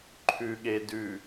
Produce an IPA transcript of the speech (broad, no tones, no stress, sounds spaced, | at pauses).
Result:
ǃʰ ʉ ɠ e d ʉ